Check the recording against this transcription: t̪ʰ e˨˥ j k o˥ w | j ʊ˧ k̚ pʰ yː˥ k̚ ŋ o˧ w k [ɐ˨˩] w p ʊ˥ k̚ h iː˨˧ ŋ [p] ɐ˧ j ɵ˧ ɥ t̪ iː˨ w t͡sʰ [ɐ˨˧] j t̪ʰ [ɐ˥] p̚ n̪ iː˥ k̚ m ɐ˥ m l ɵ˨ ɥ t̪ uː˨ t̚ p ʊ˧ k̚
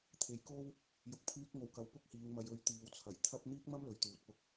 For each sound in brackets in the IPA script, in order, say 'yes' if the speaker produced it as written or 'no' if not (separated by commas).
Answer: no, no, no, yes